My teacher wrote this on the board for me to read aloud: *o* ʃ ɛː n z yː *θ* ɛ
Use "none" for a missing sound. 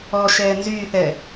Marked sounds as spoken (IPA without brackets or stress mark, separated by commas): ɔ, θ